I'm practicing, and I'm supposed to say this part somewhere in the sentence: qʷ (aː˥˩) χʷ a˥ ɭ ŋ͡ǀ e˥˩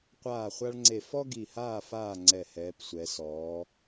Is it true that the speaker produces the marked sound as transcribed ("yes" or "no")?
yes